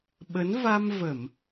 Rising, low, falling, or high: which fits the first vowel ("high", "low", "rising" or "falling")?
rising